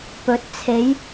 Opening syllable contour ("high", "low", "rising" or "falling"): rising